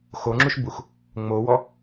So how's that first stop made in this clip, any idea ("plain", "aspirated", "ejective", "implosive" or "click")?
click